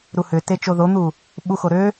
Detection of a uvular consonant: absent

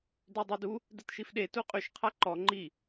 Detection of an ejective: present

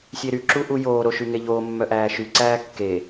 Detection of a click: present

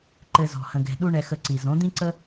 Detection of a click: present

